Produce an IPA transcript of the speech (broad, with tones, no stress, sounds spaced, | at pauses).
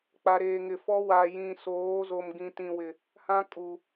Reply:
k͡p a˨ ɾ eː˨ ŋ ɪ˨ f ɔ˦ w a˨ j ĩ˨ s oː˨˦ z o˨ m ɡ ĩ˨ t ĩ˨ w ɪ˨ | h ã˦ kʼ u˨